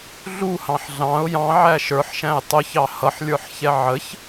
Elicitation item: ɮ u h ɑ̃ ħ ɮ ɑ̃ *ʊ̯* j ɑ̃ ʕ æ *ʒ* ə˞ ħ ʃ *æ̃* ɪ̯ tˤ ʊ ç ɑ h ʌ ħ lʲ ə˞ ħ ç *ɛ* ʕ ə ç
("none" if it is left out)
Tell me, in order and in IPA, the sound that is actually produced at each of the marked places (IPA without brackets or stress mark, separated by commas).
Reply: ʊ̯, ʃ, æ̃, ɛ